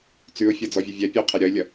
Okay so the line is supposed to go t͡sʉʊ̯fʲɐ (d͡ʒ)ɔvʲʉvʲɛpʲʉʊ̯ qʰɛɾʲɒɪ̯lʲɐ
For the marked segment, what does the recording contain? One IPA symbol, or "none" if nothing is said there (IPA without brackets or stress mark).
d͡z